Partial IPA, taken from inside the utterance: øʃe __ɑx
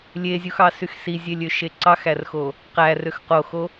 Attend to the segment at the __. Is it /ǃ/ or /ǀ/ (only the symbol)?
ǀ